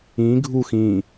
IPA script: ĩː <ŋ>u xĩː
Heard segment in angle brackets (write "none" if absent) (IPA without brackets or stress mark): ɡʱ